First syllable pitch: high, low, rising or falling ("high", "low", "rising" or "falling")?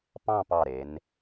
falling